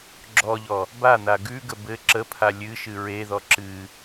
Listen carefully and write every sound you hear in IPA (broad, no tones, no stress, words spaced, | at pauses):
ɡ͡ǁɔʎɔ | ban̪a ɡʉɡə bɘ ǁəpʰa lʲɨʃɨ ɹeðɔ ǁɨ